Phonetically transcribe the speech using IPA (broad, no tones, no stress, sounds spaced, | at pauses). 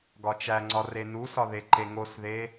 ɡ ɒ t͡ʃ æ ŋ͡ǀ ɒ r e n u s ɒ ð e ǃ e ŋ o s ð e